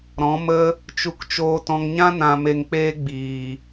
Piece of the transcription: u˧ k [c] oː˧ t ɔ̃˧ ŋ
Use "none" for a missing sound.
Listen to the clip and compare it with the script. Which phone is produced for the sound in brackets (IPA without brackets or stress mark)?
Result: t͡ʃ